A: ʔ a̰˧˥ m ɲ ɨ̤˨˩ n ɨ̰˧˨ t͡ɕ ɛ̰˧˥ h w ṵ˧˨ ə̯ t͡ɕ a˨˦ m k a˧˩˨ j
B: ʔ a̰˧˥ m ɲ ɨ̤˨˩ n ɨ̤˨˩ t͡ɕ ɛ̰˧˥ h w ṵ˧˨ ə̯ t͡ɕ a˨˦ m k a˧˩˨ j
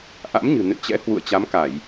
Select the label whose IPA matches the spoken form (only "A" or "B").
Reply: A